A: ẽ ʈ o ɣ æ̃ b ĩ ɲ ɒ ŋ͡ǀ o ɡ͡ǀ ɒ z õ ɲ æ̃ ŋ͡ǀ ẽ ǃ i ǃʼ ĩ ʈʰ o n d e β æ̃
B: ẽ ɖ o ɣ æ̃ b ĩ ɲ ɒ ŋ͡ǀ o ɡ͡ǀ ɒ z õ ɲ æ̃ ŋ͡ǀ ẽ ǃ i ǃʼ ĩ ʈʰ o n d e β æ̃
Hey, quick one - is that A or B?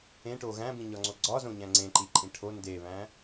A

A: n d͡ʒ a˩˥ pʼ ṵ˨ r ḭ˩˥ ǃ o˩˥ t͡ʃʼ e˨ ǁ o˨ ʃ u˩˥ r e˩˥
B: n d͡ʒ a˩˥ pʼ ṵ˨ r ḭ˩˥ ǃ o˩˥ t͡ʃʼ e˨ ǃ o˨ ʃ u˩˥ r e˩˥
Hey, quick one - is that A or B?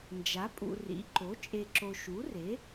A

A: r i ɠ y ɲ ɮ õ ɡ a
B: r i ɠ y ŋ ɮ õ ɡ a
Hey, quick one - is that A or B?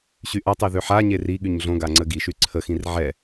A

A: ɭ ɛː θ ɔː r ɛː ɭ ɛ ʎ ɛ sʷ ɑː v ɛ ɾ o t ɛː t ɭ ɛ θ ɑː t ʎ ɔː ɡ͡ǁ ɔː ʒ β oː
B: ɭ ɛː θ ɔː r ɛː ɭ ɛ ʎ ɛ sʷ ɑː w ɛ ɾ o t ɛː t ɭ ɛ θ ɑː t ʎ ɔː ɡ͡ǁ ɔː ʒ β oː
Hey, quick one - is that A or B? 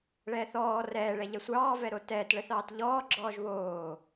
A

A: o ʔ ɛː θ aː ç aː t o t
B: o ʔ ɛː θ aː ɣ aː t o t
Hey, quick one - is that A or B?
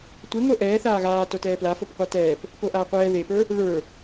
B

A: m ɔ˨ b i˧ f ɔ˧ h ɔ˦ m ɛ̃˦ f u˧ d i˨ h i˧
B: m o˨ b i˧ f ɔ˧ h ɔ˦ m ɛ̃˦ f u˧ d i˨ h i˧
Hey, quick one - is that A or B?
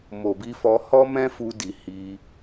B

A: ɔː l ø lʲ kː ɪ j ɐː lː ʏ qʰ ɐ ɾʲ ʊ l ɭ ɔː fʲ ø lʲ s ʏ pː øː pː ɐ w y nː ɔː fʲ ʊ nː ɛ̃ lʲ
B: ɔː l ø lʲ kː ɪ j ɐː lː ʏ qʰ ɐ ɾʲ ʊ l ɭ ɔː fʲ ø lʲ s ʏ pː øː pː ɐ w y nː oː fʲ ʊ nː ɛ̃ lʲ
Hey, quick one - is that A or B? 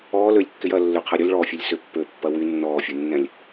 A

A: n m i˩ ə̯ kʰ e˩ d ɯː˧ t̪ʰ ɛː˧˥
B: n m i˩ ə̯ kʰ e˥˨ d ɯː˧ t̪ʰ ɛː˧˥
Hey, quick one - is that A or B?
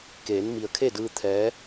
B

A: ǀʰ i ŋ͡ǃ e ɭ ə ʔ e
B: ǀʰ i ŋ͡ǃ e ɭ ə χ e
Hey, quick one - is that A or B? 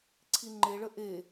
A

